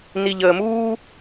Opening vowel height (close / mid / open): close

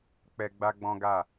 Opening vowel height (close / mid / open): mid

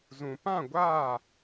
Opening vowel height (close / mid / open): close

